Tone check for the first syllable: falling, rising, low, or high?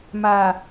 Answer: low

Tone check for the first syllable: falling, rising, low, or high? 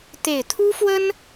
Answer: low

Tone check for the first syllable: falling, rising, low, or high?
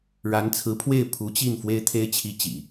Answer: rising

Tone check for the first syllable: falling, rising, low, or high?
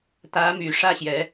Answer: rising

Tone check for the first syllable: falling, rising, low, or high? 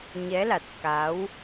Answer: rising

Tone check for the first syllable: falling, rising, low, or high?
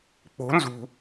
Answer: rising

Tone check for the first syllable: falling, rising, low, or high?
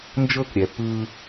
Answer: falling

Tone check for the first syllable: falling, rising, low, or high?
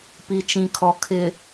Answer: low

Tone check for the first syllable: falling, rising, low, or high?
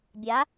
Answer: rising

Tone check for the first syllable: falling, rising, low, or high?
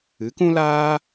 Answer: rising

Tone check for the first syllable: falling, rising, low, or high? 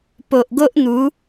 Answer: low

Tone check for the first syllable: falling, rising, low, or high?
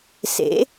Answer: rising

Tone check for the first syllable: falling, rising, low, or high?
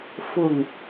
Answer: low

